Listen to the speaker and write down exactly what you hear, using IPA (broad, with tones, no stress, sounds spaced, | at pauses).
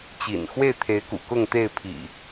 t͡ɕ ḭ˨˩ n x w e˥˨ ɪ̯ t̪ʰ e˨˦ ɪ̯ k ṵ˨˩ k ʊ˥˨ ŋ t̪ e˥˨ ɪ̯ pʰ ḭ˨˩